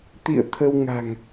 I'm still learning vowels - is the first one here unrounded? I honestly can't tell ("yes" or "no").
yes